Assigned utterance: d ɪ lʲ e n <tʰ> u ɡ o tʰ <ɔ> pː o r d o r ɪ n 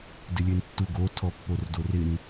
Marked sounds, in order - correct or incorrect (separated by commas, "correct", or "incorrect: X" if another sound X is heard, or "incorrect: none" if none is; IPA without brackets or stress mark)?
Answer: incorrect: tː, correct